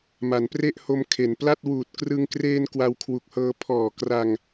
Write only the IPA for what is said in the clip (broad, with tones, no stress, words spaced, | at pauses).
ma˩˦npre˥˩ʔho˧m kʰe˩˦npla˥˩t̚ wuː˨˩t̚krɯ˧ŋkreː˧n kwa˧wkʰwu˨˩k̚hɤː˧ pʰɔː˨˩kra˧ŋ